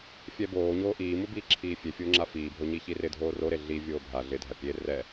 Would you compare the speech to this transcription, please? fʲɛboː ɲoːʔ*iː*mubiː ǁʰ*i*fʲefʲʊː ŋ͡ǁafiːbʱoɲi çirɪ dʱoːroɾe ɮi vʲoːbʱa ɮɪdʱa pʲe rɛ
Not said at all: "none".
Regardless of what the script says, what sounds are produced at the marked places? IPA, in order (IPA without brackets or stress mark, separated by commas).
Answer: iː, iː